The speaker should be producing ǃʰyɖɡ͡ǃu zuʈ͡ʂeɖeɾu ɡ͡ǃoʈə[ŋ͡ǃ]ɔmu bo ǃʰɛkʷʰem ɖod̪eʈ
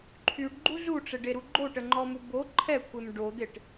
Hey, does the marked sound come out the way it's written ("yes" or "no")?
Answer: yes